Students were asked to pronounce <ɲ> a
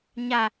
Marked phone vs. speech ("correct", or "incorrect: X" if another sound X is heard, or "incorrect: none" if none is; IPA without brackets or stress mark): correct